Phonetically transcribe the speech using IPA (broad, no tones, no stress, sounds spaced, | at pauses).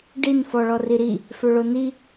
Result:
ɖ i n f ɔ ɭ ɔ r i ɾ i | f ø ɭ o n i